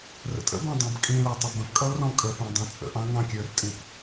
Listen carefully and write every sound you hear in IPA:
rə̰tʼə̰bɑ̃ dˤɑ̃bkʼĩlæ tˤʌbə̃pkʼʌl rɔ̃kʼəpæ̃ dˤɑ̃t͡sʼə̰ʔɑ̃ ŋɑ̃kʲə˞rtʼĩp

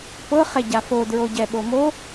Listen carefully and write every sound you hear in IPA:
pɤ χɛɟafo dɹoɟɛɓomo

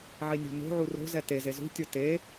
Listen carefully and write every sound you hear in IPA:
ʕinʲo̤no̤ʕu ro̤zɛ teze zṳtʲo te

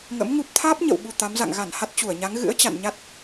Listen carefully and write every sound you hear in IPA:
ŋə̰˧˥mŋu˦˥p̚ t̪ʰaː˦˥p̚ɲə̰˧˨wɓu˨˩ t̪a˨˦mza̰˧˨ŋ ɣa˧˩n ha˦˥t̚t͡ɕu˧˩ə̯ɲa˨˦ŋ ɣɨ̰˧˥ə̯ t͡ɕa̰˧˨nɲa˦˥t̚

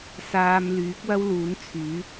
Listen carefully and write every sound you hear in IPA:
saː˧m lyː˨˥k̚wɐ˥w luː˨˥n t͡sʰyː˨˥

